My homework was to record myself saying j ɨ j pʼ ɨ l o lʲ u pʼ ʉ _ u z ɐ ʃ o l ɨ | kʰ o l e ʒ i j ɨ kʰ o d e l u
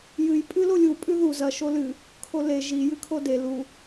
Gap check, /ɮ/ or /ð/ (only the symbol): ð